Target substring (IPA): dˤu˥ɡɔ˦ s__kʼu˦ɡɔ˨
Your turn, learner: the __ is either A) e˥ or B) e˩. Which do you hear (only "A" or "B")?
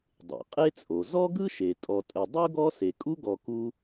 B